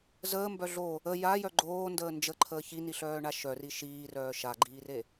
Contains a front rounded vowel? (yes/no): yes